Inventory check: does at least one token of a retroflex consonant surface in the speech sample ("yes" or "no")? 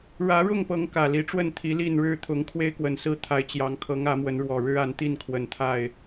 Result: yes